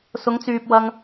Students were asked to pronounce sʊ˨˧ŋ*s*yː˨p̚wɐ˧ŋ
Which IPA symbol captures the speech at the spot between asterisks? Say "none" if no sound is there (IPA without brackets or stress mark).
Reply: t͡s